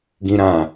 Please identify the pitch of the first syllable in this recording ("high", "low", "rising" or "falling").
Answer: high